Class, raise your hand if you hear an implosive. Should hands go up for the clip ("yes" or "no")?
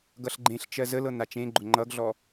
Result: no